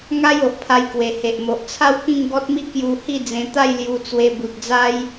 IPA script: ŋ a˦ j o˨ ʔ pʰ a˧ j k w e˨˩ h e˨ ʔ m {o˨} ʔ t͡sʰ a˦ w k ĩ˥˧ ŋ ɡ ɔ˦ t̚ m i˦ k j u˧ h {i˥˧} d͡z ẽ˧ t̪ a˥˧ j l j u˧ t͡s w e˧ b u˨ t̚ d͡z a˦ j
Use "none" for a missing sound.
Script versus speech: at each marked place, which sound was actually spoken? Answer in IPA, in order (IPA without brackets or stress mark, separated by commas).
o˨, i˥˧